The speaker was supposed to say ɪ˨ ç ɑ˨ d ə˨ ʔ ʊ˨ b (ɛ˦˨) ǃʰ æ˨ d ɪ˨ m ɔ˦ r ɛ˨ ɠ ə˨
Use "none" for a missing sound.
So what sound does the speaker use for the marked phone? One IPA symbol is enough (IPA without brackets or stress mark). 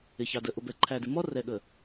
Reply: ɛ˨